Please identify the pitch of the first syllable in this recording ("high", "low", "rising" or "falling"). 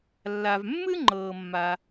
low